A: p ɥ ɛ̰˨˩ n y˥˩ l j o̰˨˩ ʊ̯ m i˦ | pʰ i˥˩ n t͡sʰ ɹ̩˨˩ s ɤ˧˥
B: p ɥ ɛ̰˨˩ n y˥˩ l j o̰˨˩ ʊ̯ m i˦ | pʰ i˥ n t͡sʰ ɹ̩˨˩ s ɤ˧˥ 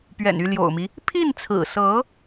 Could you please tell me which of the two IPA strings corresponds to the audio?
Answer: A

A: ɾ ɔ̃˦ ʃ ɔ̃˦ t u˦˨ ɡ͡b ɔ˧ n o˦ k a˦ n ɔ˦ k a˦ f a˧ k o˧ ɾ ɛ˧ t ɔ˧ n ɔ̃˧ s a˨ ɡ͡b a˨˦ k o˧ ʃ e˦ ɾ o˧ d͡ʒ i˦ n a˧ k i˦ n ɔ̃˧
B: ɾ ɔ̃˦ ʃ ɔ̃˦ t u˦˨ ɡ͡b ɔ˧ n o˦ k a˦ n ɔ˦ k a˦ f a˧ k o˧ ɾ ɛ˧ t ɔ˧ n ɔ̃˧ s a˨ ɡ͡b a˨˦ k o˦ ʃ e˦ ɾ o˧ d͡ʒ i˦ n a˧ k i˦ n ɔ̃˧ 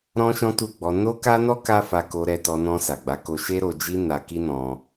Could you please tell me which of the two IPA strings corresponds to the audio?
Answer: A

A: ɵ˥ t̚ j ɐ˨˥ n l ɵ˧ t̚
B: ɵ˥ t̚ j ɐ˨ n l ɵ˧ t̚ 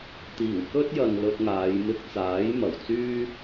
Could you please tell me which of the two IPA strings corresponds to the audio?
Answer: B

